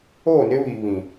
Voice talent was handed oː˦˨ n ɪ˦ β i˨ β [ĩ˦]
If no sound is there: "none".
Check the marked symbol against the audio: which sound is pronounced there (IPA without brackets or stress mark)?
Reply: ĩ˨